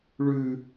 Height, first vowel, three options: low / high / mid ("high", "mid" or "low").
high